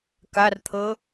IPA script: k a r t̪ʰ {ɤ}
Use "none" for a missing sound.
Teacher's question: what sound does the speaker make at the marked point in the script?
ɤ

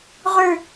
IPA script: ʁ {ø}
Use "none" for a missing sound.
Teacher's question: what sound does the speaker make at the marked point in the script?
ʉ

